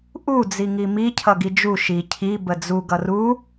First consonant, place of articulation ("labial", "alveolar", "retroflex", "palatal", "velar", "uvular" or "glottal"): glottal